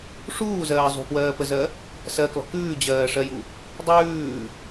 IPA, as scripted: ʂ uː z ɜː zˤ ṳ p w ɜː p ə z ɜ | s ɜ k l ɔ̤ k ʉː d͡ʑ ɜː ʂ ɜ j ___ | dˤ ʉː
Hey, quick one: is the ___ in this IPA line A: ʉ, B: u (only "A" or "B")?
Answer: B